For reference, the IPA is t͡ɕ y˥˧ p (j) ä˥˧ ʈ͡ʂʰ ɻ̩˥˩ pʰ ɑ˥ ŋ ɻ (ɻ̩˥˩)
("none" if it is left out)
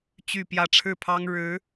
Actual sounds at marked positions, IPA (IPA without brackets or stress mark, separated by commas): j, ɻ̩˧˥